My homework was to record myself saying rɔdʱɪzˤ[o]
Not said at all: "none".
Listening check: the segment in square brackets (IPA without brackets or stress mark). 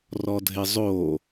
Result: o